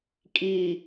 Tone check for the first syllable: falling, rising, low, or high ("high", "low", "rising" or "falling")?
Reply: low